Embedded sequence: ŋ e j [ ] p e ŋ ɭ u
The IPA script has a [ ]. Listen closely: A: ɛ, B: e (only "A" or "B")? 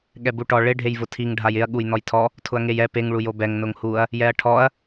A